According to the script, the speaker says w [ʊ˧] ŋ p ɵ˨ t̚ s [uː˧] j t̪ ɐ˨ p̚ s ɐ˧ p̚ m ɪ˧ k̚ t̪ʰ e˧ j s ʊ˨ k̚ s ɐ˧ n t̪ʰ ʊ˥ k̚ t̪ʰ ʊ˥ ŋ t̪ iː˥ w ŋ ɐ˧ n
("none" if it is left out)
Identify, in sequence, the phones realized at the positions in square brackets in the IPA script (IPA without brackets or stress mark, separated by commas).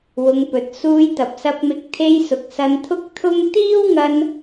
ʊ˨˧, uː˧